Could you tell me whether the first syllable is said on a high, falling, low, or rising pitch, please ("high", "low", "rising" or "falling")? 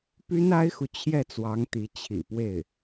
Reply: high